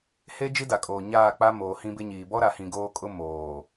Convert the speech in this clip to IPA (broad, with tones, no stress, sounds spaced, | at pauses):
h e˦ d͡ʒ i˦ d a˨ kʼ oː˨ ɲ aː˦˨ k͡p a˦ m oː˨ h ĩ˦ b ɪ˦ ɲ iː˨ b ɔ˦ ɾ a˨ h ĩ˨ ɡ oː˦ kʼ ʊ˦ m oː˨